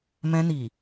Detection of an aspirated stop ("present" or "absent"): absent